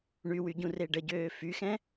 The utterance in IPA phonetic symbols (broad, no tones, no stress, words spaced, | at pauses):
ɳywy ɟũreɖəɟøː fyxɛ̃